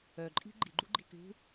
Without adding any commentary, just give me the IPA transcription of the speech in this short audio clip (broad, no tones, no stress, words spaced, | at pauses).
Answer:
œǃʼi̤ ɡ͡ǃiɡ͡ǃuɡ͡ǃi̤ tṳ